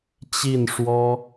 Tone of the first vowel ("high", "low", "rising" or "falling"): falling